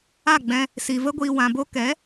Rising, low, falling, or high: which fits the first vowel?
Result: falling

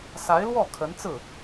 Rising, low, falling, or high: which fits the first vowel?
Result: rising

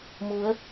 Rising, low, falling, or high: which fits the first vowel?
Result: rising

